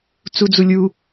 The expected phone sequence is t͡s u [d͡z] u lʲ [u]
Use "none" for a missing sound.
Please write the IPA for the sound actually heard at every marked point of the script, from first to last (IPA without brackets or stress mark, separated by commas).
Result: d͡z, u